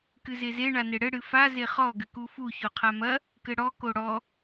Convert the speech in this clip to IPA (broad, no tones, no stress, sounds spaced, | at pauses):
k ɨ z e z e ɳ a n e ɽ ɘ ɽ ɨ f a z e χ ɔ ɡ ɘ k u f u ç o qʰ a m ɐ | k ɘ ɽ ɔ k o ɽ ɔ